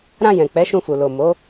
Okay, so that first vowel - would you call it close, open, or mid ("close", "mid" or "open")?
open